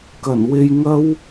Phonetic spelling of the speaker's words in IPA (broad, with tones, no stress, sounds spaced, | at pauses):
k ɐ˨˩ n w e˧ j ŋ ɐ˥ w